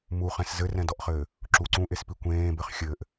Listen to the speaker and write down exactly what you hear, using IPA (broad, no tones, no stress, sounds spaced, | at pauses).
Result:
m u χ ɛ̃ s z ɘ r ɛ̃ d ɔ ʔ χ ɘː | ǁ u ǀ ũ ʔ e s p i kʷ ẽː b ɘ χ xʲ ɘ ʔ